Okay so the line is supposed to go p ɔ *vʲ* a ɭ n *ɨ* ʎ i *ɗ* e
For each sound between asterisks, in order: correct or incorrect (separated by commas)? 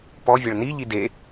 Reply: correct, incorrect, incorrect